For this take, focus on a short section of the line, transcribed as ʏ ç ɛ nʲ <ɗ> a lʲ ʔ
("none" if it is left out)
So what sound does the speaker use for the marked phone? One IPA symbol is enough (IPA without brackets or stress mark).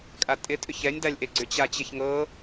d